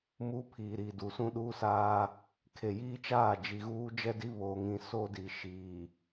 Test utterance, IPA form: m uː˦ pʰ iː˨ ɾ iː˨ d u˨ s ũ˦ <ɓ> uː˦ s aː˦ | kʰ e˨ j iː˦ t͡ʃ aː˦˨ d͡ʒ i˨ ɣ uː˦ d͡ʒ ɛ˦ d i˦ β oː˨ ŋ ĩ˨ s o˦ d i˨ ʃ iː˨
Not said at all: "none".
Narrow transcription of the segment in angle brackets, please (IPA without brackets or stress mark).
ɗ